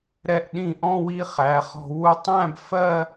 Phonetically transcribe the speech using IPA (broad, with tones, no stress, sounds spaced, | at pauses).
ɾ ɛ˧˩ ʔ ɗ ĩ˧˩ ʔ ɔ̃˥˧ w i˧ χ æ˩˧ χ ɔ̤˧ w u˧ tˤ æ̃˥˧ b f ɜ˥˧